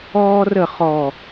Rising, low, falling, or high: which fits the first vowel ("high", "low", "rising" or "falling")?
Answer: high